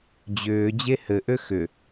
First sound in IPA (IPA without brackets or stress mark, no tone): d͡ʑ